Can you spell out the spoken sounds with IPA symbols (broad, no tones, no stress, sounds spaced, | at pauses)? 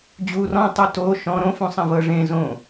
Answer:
d͡ʑ u r ɔ̃ tˤ u t o ʃ ɔ̃ ɾ õ f ũ sˤ ẽ v ɤ ʐ ẽ z õ